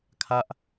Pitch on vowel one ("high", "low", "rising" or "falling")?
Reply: high